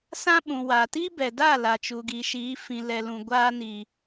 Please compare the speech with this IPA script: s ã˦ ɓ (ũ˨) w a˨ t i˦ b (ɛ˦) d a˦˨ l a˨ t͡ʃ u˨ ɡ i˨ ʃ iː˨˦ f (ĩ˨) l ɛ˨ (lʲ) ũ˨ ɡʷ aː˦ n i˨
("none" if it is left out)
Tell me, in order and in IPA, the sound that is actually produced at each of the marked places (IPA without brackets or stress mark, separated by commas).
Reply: ũ˨, ɛ˨, ĩ˨, l